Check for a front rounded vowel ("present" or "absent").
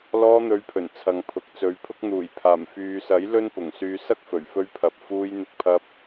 present